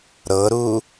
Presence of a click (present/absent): absent